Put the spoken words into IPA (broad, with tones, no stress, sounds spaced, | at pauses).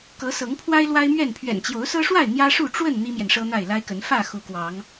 k ɤ˨˦ s ɤ˨˦ ŋ pʰ w a˦ ɪ̯ l w a˦ ɪ̯ m ɥ ɛ˥˨ n pʰ ɥ ɛ̰˨˩ n t͡ɕ j o˨˦ ʊ̯ s ɤ˦ ʂ w a˥˨ ɪ̯ n̪ j ä˦ ʂ u˥˨ ʈ͡ʂ w ə˥˨ n n̪ i˦ m j ɛ˨ n ʂ ɤ˦ n̪ a˥˨ ɪ̯ l a˦ ɪ̯ k ə˨˦ n f ä˥˨ x u˨˦ k w ɑ˨˦ ŋ